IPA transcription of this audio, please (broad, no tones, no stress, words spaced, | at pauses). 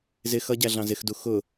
zɪ xʌɟæɮɑ̃ zɪxdu xʊ